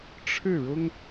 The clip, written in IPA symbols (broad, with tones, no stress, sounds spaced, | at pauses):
ʈ͡ʂʰ ɻ̩˥˩ ɻ ʊ˥ ŋ